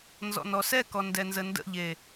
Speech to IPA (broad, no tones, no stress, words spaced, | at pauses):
nzɔ̰nɔsɛkɔ ndɛnzəndə̰ʎe